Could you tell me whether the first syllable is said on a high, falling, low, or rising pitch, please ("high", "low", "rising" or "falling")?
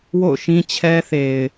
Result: falling